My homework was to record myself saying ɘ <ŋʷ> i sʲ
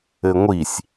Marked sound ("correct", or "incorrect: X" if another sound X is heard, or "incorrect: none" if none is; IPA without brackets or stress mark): correct